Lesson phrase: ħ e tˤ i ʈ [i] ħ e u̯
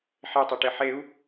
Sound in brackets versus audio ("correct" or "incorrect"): incorrect